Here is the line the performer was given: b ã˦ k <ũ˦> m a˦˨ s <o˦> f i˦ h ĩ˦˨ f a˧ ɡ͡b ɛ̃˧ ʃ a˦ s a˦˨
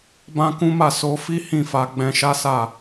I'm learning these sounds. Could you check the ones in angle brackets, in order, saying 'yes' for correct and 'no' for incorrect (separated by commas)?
yes, no